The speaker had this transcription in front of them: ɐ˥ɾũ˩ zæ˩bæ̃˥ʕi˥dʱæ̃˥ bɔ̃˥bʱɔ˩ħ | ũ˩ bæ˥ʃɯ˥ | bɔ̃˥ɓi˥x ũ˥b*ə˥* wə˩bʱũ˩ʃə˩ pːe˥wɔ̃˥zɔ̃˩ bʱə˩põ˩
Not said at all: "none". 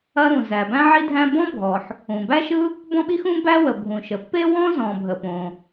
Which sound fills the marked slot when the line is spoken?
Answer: æ˥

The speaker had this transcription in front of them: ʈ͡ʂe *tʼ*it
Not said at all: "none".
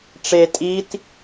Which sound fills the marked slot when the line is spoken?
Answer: tʼ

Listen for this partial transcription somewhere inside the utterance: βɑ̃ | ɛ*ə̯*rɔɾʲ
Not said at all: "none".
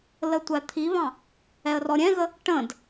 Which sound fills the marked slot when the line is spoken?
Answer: ə̯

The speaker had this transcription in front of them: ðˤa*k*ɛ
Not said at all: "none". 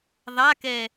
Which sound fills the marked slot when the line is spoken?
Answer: k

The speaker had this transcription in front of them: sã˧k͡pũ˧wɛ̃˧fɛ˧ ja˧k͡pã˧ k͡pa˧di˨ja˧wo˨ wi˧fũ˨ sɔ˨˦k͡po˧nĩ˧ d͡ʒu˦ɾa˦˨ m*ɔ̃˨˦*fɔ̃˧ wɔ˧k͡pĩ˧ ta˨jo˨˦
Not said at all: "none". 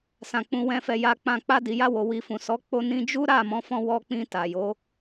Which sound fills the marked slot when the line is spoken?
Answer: ɔ̃˨˦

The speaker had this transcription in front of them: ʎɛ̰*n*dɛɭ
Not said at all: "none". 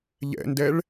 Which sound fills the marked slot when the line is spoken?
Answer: n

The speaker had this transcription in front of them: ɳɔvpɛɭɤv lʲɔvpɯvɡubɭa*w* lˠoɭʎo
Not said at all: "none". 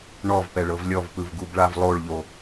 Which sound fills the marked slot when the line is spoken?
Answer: v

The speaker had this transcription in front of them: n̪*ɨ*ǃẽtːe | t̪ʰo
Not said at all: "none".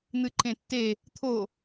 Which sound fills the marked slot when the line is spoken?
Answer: ɨ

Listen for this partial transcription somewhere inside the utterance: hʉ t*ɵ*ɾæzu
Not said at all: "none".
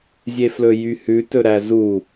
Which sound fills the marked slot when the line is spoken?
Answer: ɵ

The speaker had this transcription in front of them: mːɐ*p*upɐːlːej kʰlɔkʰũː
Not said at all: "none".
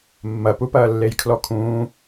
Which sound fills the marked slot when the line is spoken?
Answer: p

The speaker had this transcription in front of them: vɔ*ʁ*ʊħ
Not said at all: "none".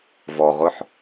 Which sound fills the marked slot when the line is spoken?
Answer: ʁ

